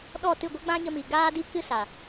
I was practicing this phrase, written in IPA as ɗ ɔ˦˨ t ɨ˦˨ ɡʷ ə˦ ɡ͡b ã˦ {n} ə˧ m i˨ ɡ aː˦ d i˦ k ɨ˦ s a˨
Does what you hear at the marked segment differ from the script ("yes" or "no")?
yes